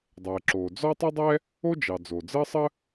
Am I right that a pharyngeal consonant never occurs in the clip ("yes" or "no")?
yes